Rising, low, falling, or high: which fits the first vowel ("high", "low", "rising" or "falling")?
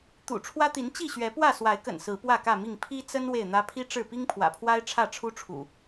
low